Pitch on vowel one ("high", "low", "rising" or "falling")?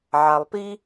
low